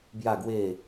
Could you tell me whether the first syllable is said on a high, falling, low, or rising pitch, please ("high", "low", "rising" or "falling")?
falling